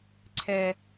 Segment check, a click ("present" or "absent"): present